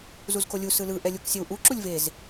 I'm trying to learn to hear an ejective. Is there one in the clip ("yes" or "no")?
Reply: no